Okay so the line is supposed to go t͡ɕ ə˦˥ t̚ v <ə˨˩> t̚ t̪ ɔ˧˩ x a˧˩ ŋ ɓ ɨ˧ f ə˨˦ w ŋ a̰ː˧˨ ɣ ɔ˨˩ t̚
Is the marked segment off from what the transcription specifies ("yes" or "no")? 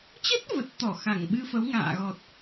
no